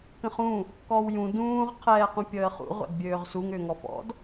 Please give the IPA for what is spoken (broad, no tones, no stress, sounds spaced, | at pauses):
k ə̃ χ ũ | k ɔː w j ũ d ũː ʁ qʰ ɛː q ũ pʲ əː χ ṵ ʁʷ æ̰ d bʲ øː ʁ s u ŋ ʏː ŋ ɔ f ɔ̰ d